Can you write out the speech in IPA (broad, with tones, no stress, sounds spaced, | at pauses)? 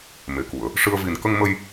m e˨˩˨ k u˨˩˨ ə̯ | ʂ ɨ˧ ə̯ v i˨˩ n k ə˧ ŋ m ə˧ j